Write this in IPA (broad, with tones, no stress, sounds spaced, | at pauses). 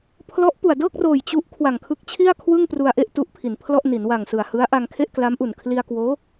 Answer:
pʰ l ɔ˦˥ ʔ p u˨˩ a̯ d ɤː˥˩ k̚ r oː˨˩ j t͡ɕ u˦˥ ʔ kʰ w a˨˩ ŋ kʰ ɯ˦˥ k̚ t͡ɕʰ i˥˩ a̯ kʰ w ɯ˥˩ ŋ p r u˧ a̯ ʔ e˥˩ ʔ t u˦˥ ʔ pʰ i˩˦ n pʰ l ɔ˥˩ ʔ n i˩˦ n w a˨˩ ŋ s ɯ˨˩ a̯ h ɯ˦˥ a̯ ʔ a˧ ŋ kʰ e˥˩ ʔ k l a˦˥ m ʔ u˨˩ n kʰ l i˧ a̯ k w oː˦˥